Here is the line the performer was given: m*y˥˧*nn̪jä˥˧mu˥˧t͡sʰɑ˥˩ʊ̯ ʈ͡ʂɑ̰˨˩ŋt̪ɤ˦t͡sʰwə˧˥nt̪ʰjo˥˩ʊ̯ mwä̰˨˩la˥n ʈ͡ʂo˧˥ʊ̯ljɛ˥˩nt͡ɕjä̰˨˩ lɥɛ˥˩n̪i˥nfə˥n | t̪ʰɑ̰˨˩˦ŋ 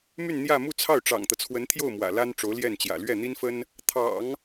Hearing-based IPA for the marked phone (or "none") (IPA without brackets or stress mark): y˥˧